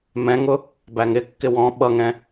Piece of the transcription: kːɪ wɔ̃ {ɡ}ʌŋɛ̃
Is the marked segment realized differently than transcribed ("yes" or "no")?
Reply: yes